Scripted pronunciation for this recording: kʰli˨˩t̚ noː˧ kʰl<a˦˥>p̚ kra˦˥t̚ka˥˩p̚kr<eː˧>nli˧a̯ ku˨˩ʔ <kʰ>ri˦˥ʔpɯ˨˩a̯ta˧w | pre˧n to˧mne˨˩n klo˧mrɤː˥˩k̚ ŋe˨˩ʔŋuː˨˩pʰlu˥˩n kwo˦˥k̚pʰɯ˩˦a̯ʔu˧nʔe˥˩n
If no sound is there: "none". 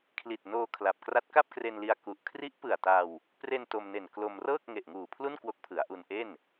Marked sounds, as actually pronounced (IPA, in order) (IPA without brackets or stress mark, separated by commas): a˨˩, e˧, kʰ